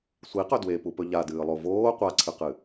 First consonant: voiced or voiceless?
voiceless